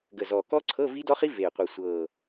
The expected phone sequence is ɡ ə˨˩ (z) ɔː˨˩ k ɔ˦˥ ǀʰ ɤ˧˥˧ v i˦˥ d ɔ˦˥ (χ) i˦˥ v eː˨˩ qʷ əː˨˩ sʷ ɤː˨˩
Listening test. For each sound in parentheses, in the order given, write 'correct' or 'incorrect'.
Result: correct, correct

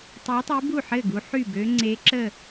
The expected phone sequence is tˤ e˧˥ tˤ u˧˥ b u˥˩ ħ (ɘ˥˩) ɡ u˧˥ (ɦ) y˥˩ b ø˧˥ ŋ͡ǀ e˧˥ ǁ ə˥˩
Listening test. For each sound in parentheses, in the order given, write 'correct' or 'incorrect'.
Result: correct, incorrect

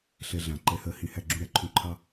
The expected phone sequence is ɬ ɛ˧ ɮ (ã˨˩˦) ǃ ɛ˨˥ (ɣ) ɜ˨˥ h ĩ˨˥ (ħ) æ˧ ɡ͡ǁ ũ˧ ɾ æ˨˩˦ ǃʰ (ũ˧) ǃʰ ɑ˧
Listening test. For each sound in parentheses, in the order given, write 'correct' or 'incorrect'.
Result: correct, incorrect, incorrect, correct

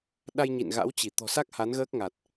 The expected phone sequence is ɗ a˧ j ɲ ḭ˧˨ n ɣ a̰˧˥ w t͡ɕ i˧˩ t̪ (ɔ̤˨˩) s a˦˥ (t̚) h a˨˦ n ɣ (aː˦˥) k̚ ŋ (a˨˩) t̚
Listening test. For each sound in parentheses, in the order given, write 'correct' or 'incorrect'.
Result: correct, incorrect, incorrect, correct

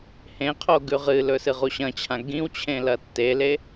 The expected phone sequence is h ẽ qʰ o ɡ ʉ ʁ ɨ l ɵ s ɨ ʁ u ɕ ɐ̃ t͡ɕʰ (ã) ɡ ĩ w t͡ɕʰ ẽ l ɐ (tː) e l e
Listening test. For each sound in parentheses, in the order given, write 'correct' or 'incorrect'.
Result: correct, correct

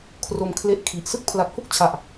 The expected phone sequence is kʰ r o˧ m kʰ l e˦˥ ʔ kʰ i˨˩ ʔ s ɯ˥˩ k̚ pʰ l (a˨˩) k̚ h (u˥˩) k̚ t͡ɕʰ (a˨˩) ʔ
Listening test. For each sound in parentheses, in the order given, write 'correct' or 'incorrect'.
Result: correct, correct, correct

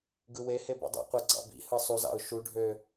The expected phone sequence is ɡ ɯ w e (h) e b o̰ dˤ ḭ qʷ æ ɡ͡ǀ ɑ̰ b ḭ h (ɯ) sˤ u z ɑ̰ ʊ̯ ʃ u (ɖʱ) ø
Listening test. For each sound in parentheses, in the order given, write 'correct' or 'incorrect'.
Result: correct, correct, correct

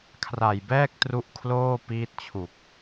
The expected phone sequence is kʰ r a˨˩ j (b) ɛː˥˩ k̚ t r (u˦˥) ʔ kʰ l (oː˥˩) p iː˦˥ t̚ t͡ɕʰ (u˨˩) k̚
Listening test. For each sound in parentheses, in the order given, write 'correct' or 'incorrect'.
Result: correct, correct, correct, correct

